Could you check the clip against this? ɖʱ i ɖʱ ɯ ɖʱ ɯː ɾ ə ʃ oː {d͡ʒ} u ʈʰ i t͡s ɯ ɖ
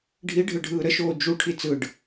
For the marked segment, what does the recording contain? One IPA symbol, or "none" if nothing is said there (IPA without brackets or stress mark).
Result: d͡ʒ